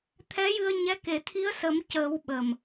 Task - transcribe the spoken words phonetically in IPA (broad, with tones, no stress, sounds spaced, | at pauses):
t̪ʰ ɛ˧˥ j ɨ˧ ə̯ ɲ ɛ˧˥ k e˨˩˦ t̪ʰ i˧˥ ə̯ s ə˨˩˦ m c əː˨˩˦ w ɓ ə˨˩ m